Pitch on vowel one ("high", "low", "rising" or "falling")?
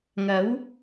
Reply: rising